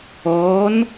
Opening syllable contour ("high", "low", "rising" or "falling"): rising